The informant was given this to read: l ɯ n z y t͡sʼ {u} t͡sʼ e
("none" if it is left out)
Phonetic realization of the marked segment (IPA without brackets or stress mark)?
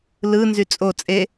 o